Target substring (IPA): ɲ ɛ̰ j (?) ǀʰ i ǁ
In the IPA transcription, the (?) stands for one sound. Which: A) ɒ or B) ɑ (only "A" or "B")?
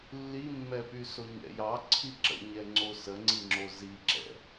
B